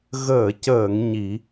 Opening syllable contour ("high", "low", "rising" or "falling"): low